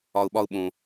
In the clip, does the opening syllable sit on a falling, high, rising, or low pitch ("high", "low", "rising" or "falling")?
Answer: low